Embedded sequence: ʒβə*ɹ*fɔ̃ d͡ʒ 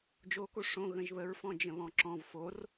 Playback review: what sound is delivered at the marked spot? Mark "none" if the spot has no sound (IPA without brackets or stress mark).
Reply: ɹ